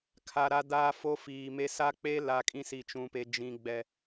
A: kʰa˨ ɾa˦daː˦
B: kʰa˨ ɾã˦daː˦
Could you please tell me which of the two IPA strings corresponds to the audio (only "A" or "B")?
A